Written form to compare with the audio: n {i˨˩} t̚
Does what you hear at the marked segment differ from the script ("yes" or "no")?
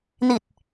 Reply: no